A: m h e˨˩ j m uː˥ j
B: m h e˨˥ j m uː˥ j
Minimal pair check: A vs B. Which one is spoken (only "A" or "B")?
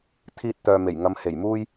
A